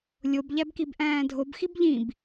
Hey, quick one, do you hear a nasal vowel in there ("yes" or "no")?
yes